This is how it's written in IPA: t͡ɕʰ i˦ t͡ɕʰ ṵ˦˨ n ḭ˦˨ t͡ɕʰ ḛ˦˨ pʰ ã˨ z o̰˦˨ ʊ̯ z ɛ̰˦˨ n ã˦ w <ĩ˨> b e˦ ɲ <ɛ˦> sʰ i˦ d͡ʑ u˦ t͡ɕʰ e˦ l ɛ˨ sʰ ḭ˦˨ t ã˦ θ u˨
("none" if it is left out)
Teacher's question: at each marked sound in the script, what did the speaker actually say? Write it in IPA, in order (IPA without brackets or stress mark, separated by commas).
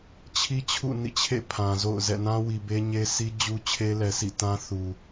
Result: i˨, e˦